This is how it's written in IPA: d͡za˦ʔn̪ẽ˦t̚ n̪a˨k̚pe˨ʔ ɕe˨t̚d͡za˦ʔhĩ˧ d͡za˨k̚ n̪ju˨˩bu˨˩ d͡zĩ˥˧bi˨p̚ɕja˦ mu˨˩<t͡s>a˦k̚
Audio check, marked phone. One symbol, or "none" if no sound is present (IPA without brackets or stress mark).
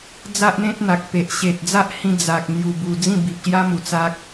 t͡s